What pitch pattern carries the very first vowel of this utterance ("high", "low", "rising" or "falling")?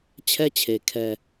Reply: high